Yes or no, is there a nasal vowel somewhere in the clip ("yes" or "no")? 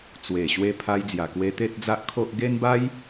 no